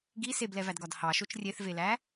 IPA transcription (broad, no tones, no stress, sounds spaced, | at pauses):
ɡ i s e b l ɛ v æ d ɡ ɒ d h ɑ ʃ o t͡ʃ rʲ e θ v e l æ